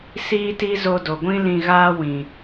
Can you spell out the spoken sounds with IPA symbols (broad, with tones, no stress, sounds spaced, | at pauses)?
s iː˦ t i˦ z o˧ d o˨ ɡʷ ĩ˦ l ĩ˧ ɣ aː˦ w ĩ˨